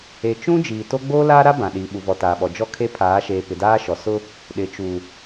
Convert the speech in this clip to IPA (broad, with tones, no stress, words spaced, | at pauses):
e˨t͡ʃũ˦ d͡ʒiː˨to˦ ɡ͡boː˦laː˦ɾa˦ bã˨ɗi˨ ɓu˨vɔ˨taː˨ɓɔ˨ d͡ʒɔ˦kʰe˦pʰaː˨˦ʃeː˨ pɪ˨daː˦ʃɔ˨ sʊ˦ | ɗɪ˨t͡ʃu˨